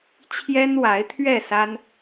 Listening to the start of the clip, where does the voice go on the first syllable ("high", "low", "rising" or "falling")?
high